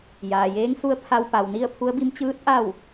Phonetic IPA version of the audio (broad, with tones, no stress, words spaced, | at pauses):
jaː˩jeː˧˥ŋsu˧˥ə̯ pʰa˧wpa˩wni˥˨ə̯ pʰu˧˥ə̯bi˧˥m t͡ɕɯː˧˥t̚ ʔa˥˨w